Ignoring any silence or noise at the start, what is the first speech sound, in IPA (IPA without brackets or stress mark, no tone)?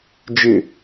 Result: d͡ʒ